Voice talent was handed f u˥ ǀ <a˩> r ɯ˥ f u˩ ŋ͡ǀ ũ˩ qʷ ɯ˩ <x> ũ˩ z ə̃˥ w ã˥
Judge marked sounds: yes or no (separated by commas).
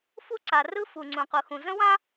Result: yes, yes